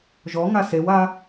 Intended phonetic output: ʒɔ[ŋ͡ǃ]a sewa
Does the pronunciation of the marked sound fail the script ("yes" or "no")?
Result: yes